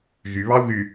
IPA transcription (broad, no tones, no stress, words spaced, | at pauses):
ɣyβɑu̯ ɣy